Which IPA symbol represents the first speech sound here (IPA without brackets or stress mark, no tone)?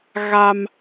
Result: ɣ